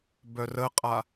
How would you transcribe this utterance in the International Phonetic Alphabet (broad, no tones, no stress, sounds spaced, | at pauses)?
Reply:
b œ r ə qʼ a